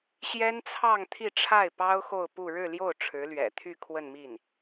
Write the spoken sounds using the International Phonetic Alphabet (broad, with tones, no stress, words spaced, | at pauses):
ɕjɛ˥nt͡sʰɑ˥˧ŋ t̪ʰi˥˧ʈ͡ʂʰa˥˩ɪ̯pɑ˥ʊ̯ xo˥˧ʊ̯pu˥˧ ɻɻ̩˥˧ljo˥˩ʊ̯ ʈ͡ʂʰɻ̩˧˥lɥɛ̰˨˩ t̪ʰy˥˧kʰwə˥˧nmi˥˩n